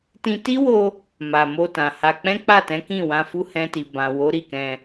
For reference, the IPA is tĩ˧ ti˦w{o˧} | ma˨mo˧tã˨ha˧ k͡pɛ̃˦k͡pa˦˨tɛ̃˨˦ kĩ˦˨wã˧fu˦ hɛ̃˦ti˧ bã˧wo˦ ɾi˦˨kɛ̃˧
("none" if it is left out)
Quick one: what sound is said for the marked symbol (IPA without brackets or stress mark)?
o˧